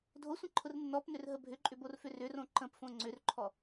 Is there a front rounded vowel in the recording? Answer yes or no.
yes